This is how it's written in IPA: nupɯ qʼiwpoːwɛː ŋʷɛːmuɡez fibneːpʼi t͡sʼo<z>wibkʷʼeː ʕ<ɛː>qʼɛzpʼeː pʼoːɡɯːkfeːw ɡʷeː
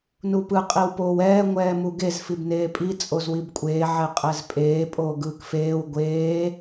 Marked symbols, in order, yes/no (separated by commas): yes, no